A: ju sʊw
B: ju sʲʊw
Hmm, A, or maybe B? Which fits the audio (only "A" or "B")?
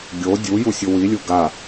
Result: B